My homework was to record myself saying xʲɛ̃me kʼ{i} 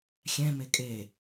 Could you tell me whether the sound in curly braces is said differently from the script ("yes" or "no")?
yes